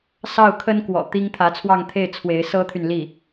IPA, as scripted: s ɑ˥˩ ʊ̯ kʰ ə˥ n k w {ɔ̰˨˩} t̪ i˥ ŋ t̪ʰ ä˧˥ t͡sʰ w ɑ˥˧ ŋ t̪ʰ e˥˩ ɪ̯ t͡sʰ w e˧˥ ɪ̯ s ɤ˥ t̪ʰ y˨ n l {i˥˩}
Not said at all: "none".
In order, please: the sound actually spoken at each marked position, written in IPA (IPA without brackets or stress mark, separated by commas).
ɔ̰˨˩, i˥˩